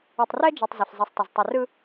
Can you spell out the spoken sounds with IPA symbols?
u˨tˤrɛ˦d͡ʒɯ˨tˤ zɪ˨ɬzˤɯ˨sˤtˤɪ˨z tˤɪ˨rɯ˦

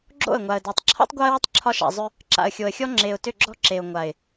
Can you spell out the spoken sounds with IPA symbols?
ɡ͡ǁo̰˦˨ə̯ŋʷa˨ə̯dɔ˨tˤ ǁʰɔ̰˦tˤɡʷa˦ə̯wʏ˦tˤ ǁʰɒ˦ʃa̰˨zˤʏ˦ | ǁa̰˨ə̯xʲo˨ə̯xʲɔ˦ ŋ͡ǁe˨ʊ̯tʏ˦˨ɡ͡ǁɔ̤˦ ǁe˨ʊ̯ŋʷa˨ɪ̯

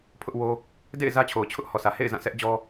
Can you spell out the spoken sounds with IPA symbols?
pʰʊ˦ʔwo˦ | dḛ˦˨ɪ̯ zä˦t͡ɕʰo˨ʊ̯t͡ɕʰʊ˦ʔ hɔ˨sä˨hḛ˦˨ɪ̯ zã˦˨sɛ˦ʔd͡ʑɔ˦

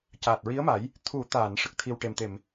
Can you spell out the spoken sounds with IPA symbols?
caː˨˩t̚ɹi˧˥ə̯ma˨˩˦j | t̪ʰu˨˩˦t̪a˨˩˨n ʂə˨˩k̚t̪ʰi˧w ʈe˨˩mt̪e˨˩˨m

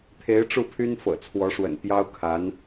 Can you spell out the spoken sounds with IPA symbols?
t̪ʰe˧˥ɪ̯ ʈ͡ʂu˥˩pʰy˥n fɤ̰˨˩ t͡sʰwɔ˧˥ʂwə̰˨˩n pjɑ˥ʊ̯kʰa˧˥n

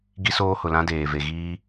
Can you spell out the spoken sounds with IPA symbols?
ɡi˦soː˦hʊ˨lã˦ deː˨ve˨ ɣiː˦

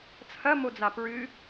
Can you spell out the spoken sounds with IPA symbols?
t͡sʰɐmod͡za pɹɨ

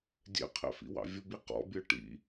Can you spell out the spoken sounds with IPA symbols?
dʲɛ̰qʰɛ̰fḭwɑ̰ vʲʊbi qɔ̰bʲə˞ ʈḭ

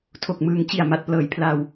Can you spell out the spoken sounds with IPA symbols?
tʰo˨˩k̚mɯː˨˩ŋt͡ɕi˨˩a̯ ma˨˩t̚plɤː˩˦j pʰla˧w

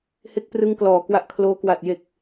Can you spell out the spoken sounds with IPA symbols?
he˦˥k̚prɯ˦˥ŋklɔː˨˩ kwa˦˥ʔkʰloː˦˥ kwa˨˩t̚je˨˩k̚

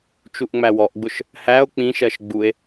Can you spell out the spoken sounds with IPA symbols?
t͡ʃuʔŋ͡mæwɔʔɡ͡bʊʃ | hæo̯ k͡pĩʃɜʃ ɡ͡bue̯

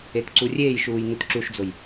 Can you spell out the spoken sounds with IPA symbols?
etǀurʲeːj ʃuːjnutǁuʃd͡zoj

